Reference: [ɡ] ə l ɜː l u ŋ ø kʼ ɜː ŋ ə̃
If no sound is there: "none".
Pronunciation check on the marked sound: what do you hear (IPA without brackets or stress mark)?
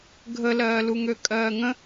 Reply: ɡʱ